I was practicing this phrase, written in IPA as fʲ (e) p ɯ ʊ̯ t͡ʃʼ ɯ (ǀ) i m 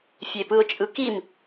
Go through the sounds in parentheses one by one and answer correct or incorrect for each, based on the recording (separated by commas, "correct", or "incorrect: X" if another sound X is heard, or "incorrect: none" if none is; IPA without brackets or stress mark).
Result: correct, incorrect: k